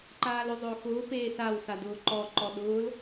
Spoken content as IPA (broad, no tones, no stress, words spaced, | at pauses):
ǃaːlʊzˤʊːxʊː peːsawsadʊː ǃɔ ǃɔɗʊːl